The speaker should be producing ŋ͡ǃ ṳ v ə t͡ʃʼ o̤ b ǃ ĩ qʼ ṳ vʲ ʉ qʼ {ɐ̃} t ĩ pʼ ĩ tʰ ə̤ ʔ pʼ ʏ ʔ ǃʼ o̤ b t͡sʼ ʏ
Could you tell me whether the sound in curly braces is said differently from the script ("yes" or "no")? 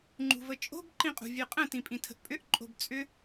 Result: yes